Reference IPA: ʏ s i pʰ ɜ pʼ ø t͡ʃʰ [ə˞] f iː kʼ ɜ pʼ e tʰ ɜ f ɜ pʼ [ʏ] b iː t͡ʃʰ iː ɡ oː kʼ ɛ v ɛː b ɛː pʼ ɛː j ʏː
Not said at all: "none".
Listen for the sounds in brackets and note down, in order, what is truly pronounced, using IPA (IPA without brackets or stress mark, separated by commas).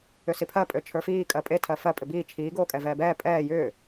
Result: ə˞, ʏ